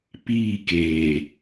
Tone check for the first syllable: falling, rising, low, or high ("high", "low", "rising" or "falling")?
falling